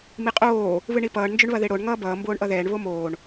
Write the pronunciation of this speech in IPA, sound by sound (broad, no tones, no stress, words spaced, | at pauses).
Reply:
miqʼoː | βɨɳipʌːɳ nd͡ʒɵɳβɐðeɽoɳ ŋʌːbʌː mboːɳʔʌðɛːɳ βomoːɳ